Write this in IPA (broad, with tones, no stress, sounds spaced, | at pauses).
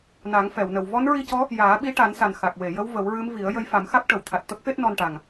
n a˨˩˦ ŋ f ɛ˨˩˨ w n ə˨˩ w v ɔ˧˥ n ɹ i˧ c ɔ˧˥ | j aː˨˩˦ ɓ i˧˥ ʈ a˨˩˦ n s a˨˩ n x a˨˩ k̚ w e˨˩˨ j ə˧˥ w v ə˨˩˦ w ɹ ɨ˧˥ m v i˨˩˦ ə̯ j ə˧˥ j f a˨˩˦ m x a˦˥ k̚ ʈ ə˨˩˨ w t̪ʰ a˨˩ t̚ t̪ ə˦˥ k̚ f e˦˥ t̚ n ɔ˧ n ʈ a˨˩ ŋ